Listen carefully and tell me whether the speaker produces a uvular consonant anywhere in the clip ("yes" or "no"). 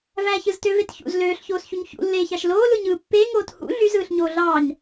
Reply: no